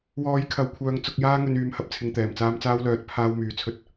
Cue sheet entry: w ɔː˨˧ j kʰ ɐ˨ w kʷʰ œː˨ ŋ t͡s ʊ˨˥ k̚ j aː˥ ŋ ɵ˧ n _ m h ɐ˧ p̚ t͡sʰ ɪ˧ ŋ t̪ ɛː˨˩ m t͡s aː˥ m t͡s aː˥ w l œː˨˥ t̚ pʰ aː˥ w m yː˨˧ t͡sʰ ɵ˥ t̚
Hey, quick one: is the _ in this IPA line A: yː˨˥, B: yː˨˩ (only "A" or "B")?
A